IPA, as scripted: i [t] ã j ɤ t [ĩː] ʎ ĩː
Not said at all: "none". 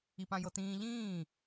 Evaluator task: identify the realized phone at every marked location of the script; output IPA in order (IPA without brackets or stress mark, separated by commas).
p, ĩː